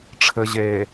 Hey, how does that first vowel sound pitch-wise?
low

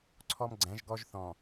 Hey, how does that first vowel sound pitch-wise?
high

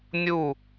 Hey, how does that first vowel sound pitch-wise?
falling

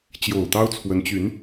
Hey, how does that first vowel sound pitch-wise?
low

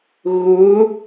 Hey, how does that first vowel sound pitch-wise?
rising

